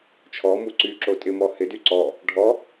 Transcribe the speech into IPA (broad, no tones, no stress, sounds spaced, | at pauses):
t͡ʃʰ ɔ m u ǀ y ǁ o tʼ ɪ m ɔ h ɪ d y ǀ ɔ | ɖʱ ɔ